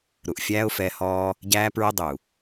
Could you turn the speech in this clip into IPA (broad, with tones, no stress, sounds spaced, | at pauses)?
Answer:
ɾ u˨ ʔ fʲ æː˦ ʊ̯ f ɛː˧ h ɔː˧ | ɟ æː˦ p ɹ ə˦ dˤ u˨